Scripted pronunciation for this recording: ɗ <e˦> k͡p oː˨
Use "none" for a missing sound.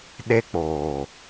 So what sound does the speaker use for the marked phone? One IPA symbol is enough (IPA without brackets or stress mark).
e˦